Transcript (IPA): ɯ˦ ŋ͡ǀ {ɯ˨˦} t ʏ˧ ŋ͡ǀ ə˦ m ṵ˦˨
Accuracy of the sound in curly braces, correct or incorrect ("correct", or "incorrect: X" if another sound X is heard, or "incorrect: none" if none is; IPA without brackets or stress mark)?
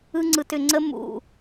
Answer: incorrect: ɯ˧